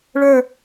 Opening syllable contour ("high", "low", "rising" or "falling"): falling